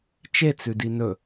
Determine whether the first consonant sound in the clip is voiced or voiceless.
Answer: voiceless